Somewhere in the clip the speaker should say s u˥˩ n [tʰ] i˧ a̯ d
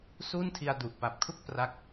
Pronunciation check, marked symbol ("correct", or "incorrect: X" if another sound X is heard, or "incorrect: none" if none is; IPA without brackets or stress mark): correct